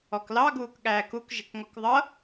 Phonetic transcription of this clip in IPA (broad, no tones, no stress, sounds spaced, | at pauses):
ɔ k l ɑ ɡ uː k ɠ æː k u k ʒ ɪ k ŋ ɔ k ðˤ ʌ